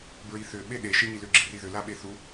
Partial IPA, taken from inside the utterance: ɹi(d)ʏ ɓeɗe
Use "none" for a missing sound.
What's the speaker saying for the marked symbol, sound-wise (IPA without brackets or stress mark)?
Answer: θ